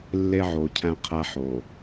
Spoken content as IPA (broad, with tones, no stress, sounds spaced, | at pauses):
lː e˦ ʕ o˨ cʰ æ̃˦ qʰ æ˦ ħ o˨